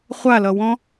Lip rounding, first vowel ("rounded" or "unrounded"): unrounded